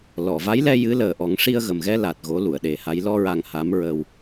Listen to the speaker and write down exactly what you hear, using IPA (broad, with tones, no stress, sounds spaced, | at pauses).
l ɔ˨˩˨ v a˧˥ j l ɛ˧ j ɨ˧˥ l əː˨˩ ʔ ɔ˨˩˦ ŋ ʂ i˧ ə̯ ɣ ə˨˩ m ɣ ɛ˧ l a˨˩ t̚ ɣ o˧˥ l u˨˩˨ ə̯ ɗ e˨˩˦ h a˧˥ j l ɔ˧ ɹ a˨˩ ŋ h a˧˥ m ɹ əː˧ w